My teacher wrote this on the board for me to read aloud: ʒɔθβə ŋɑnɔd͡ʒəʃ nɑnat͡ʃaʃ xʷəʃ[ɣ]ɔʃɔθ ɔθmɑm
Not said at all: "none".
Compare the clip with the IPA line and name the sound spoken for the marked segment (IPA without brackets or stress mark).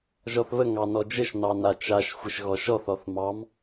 ɣ